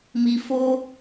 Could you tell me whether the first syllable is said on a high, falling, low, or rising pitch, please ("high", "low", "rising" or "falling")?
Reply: low